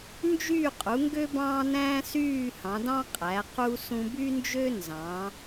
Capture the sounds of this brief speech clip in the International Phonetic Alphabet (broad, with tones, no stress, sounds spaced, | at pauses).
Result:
n d͡ʒ yː˦˨ qʼ u˩˧ ŋ ɡ ø˦ b ɑ̃ː˦ n æ̃ː˦ s yː˦˨ h ɑ̃˩˧ d ɑ̃˦ qʼ æ˩˧ q u˦ s ũ˦ b y˦ n d͡ʒ ø˦ n z ɑ̃˩˧